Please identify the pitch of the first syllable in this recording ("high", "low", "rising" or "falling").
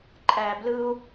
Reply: low